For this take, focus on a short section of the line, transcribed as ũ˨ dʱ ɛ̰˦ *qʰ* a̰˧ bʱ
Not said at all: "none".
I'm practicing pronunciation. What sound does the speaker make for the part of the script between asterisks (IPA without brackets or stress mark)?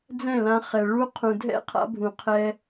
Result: qʰ